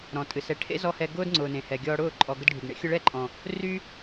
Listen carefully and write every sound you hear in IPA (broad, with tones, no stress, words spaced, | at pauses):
ɾɔ̃˨tʼɨ˨sɛ˨˦ ʈʰḛ˦zɔ˧hɛ˧ ɡʊː˦dŋ͡ǀʊː˨nẽ˨hɛ˨ ɡʲɔː˧ɽʊː˦˨ ǃʼɔ˨ ɡə˧dɖʱy˨ɡɳḛ˦ xʲʊ˧ɭɛ˦˨ǃʼɔ̃˨ | ry˦